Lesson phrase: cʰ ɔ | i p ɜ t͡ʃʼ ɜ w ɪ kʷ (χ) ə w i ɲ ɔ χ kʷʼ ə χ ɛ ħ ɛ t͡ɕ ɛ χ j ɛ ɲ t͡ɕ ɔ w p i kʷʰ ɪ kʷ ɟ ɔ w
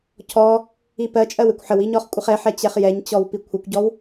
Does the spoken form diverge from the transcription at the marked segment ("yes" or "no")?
yes